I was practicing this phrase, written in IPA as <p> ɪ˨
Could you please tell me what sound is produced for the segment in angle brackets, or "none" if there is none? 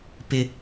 p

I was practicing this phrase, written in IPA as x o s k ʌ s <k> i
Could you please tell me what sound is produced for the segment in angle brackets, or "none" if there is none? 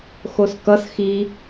x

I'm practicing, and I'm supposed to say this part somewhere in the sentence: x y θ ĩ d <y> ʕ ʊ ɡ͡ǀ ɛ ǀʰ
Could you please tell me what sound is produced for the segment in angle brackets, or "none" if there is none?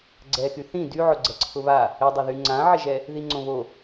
y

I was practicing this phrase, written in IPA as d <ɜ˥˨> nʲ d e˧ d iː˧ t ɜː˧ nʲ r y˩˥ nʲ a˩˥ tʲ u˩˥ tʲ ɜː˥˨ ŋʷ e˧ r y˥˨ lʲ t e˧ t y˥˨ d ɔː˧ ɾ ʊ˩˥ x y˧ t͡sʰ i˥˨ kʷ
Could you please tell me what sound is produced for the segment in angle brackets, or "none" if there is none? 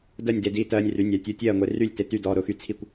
ɜ˥˨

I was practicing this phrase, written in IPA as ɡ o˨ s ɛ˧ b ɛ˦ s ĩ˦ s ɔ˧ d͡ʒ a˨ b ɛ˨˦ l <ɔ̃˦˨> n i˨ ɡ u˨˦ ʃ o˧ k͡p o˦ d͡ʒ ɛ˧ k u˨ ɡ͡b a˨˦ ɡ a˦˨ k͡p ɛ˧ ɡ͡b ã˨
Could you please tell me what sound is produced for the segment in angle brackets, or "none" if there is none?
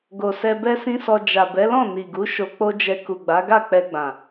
ɔ̃˦˨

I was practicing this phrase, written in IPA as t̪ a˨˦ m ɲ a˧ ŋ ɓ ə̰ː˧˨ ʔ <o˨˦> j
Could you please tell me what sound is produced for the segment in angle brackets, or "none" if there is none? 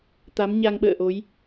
o˨˦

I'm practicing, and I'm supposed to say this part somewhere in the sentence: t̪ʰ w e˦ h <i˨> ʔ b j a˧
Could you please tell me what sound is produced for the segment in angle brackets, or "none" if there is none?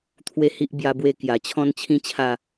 i˦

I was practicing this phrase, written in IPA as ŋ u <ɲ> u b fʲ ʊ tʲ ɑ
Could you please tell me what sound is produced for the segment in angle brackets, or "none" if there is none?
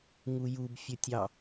j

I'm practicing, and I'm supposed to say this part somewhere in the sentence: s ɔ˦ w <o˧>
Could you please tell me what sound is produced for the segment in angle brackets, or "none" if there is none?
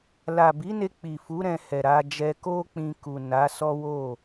o˦˨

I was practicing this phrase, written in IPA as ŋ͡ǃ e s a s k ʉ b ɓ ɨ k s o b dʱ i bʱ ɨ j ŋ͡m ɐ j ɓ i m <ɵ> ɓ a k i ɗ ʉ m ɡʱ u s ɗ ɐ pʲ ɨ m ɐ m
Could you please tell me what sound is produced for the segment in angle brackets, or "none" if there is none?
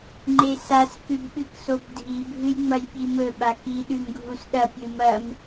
ɵ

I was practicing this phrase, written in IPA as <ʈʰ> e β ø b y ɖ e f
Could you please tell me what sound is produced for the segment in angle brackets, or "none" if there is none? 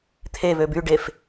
t̪ʰ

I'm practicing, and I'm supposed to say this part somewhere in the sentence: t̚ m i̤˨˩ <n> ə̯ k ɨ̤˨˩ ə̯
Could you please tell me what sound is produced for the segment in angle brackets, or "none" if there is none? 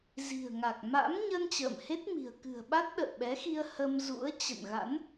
none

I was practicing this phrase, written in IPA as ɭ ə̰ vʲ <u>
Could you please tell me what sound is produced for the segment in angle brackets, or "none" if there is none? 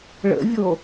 o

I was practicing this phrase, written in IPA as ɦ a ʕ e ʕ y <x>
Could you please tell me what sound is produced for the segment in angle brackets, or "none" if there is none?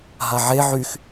x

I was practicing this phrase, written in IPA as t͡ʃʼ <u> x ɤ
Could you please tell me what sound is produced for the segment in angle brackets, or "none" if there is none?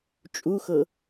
u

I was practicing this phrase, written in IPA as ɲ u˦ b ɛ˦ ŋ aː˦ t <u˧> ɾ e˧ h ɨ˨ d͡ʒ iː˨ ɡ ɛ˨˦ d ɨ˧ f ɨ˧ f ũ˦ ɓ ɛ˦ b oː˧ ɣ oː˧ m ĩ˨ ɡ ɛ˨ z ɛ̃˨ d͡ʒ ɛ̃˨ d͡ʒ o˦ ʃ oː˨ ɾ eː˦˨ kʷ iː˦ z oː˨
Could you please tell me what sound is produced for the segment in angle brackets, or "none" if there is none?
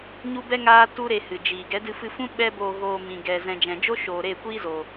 u˦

